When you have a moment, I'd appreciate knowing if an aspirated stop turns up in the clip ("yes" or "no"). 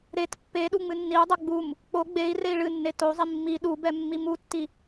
no